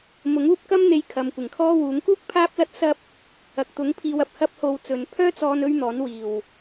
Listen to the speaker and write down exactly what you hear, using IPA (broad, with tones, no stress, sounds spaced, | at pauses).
m ʊ˨˥ ŋ uː˥ p̚ k ɐ˥ m n̪ e˧ j kʰ ɐ˨ m kʷ ɪ˨˩ ŋ kʰ ɔː˥ w uː˨˥ ŋ k uː˥ k̚ pʰ aː˥ p̚ l ɐ˥ t̚ s ɐ˥ p̚ | ɐ˨ k̚ t̪ ʊ˨˥ ŋ pʰ iː˧ w ɐ˨ p̚ h ɐ˥ p̚ h o˧ w t͡s ɵ˨˧ n pʰ œː˥ t͡s ɔː˧ n ɵ˥ ɥ n̪ ɔː˨˥ n w iː˨˩ w